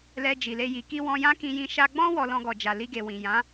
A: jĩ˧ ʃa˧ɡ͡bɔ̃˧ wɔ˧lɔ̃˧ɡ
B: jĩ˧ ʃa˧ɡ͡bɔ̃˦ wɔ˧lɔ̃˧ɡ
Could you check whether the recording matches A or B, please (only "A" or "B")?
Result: B